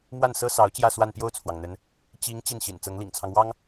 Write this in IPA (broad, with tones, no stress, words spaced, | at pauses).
mwa˥˩nsɤ˥sɑ˧˥ʊ̯ t͡ɕjä˥˧swa˥˧n pjo˥˩ʊ̯t͡sʰwɑ˩ŋ n̪ə˧˥n | t͡ɕi˧˥ŋ t͡ɕi˥˩nɕḭ˨˩n t͡sɤ˧˥ŋlḭ˨˩ŋt͡sʰɑ˦ŋ wɑ˥ŋ